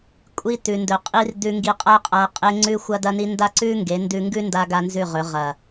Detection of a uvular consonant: present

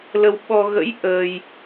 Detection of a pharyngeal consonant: absent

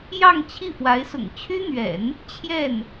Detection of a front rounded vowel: present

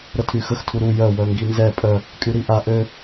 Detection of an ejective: present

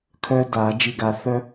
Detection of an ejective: absent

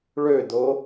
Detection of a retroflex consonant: present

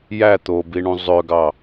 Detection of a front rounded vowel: present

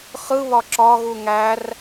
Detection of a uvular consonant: present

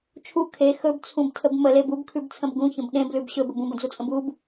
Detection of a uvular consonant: absent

